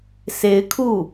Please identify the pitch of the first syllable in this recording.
rising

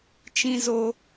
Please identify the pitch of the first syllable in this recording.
high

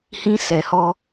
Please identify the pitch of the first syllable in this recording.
high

